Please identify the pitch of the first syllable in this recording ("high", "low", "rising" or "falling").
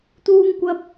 high